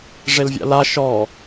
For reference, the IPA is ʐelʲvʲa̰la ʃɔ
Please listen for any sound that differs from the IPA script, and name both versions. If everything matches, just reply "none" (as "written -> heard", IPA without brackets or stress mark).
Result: lʲ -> l